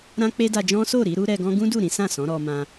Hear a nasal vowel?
yes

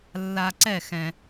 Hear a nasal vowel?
yes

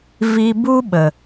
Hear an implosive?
yes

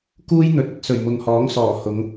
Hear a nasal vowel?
no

